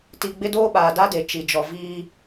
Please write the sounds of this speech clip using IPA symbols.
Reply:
t i˨ ɡ͡b ɪ˦ d oː˦ ɓ aː˨ d a˦ d e˨ t͡ʃ i˨ d͡ʒ ɔ˨ v iː˦

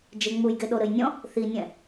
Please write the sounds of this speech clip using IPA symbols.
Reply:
d͡ʒ e ŋ͡m u j ɡ e ɗ o ɾ ɘ j nʲ ɔ̃ | θ i nʲ ɛ̃

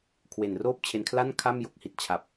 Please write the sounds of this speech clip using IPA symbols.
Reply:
kʰ w e˨˩ n r oː˥˩ p̚ t͡ɕʰ e˧ n kʰ l a˥˩ n kʰ a˥˩ m j o˦˥ k̚ h i˨˩ t̚ t͡ɕʰ a˨˩ p̚

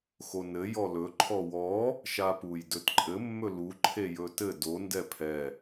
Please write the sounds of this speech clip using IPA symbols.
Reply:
x o n ɘ j ɔ l ɵ ǃʰ ɔ w ɔ | ʃ a p u j d ɵ t ǃʼ ɘ mː ɵ l u ǃʰ e j ɵ t ɘ d o n d ɛ pʰ ɛ

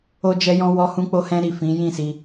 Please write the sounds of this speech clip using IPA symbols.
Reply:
o˧ d͡ʒ ɛ˧ j ɔ̃˧ w ɔ˧ h ũ˧ k͡p o˧ h ɛ̃˧ ɾ i˨ f ĩ˨˦ j ĩ˦˨ s i˧

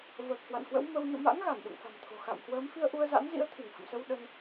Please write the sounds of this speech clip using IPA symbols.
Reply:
v əː˨˩ k̚ h w a̰˧˨ n h w ə̰˧˥ w m ə˧ w ɲ o̰˧˨ m a̰˧˥ ŋ ɣ a˧˩ n ɗ ṵ˧˨ ŋ f a̤˨˩ m t̪ʰ o̤˨˩ x a̰˧˨ m h w əː˨˦ m f i˧ ə̯ ʔ u˧ ə̯ z a̰˧˥ n z ḭ˧˥ ə̯ t̪ʰ i˧˩ ŋ h ə̰˧˨ m s ə˧ w ɗ ə˧ n

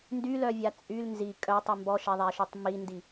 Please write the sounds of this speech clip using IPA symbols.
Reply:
n d y l œ vʲ a t͡sʼ y l n z i kʼ œ tˤ y m b ɔ ʃ ɛ ðˤ ɛ ʃ ø tˤ m i n d i

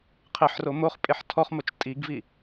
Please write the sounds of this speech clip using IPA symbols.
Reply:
qʰ ɪ ħ r o m o χ pʼ e ħ tʰ ɔ χ m o t͡ʃ tʼ i ɡ v i

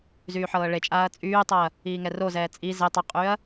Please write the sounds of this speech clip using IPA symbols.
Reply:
z yː ħ ɤː ɭ e t͡ʃʼ aː ɐ̯ t͡sʼ yː tˤ ɤ ɐ̯ | iː ŋ ɛ r o z ɛː t͡sʼ i z e tˤ ə qʼ y ɐ̯

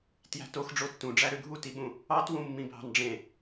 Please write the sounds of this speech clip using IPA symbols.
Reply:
t j æ̤ t o x ɖ͡ʐ o tː ũ ɖ͡ʐ æ ɾ ø ɡʱ u t i ɓ ũ | ɑ t w ũ mː ĩ bʱ ɑ̤ n ɖ͡ʐ ẽ

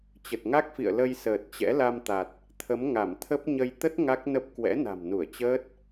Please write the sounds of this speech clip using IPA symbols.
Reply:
t͡ɕ ə˨˩ t̚ ŋ a˦˥ k̚ f ḭ˧˨ ə̯ l ə˧ j s əː˨˩ t̚ t͡ɕ ɛ̰˧˥ l a˧ m t̪ a˨˩ t̚ | t̪ʰ ə˨˦ m ŋ a˧˩ m t̪ʰ ə˦˥ p̚ ɲ ə˧ j t̪ ə˦˥ t̚ ŋ a˦˥ k̚ n ə˦˥ p̚ k w ɛ̰˧˥ n a̤˨˩ m n u˧˩ ə̯ t͡ɕ əː˦˥ t̚

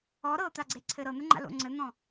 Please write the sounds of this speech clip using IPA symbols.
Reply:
ɔ ɾ ɤ t̪ a ɡ͡ǀ e ǀʰ ɘ ɾ ɤ n̪ ɘ ŋ͡ǃ a̰ l o̰ ŋ͡ǀ ɘ n̪ ɔ̃

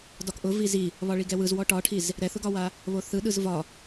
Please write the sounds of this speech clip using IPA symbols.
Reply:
d ɒ k ʔ ʊ v i z i | β ɒ ɭ i ɡ ɛ w ɯ z w ɔ ʈ ɒ ʈʰ i z | ɾ ɛ θ ʊ ɡ ɒ w a | β o θ ɯ ɗ ɯ z v ɒ

